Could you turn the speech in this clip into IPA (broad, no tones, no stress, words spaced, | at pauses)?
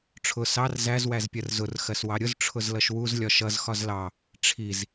ʈ͡ʂʰʊ sɑr zæz wæzpʲɜrzʊr xɜswɑɾʲʊz ʈ͡ʂʰʊzlʌʃwuz lʲɒʃʌz xɒzlɑ | ʈ͡ʂʰiz